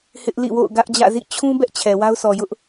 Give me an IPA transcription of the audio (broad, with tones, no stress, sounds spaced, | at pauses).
h ɪ˦ ʔ l ḭ˦˨ w o̰˦˨ ʊ̯ ɡ ä˦ ʔ d͡ʑ ä̰˦˨ z ḭ˦˨ t͡ɕʰ ũ˦ b ɛ˦ ʔ t͡ɕʰ ɛ˨ w a˦ ʊ̯ sʰ ɔ˨ j ʊ˦ ʔ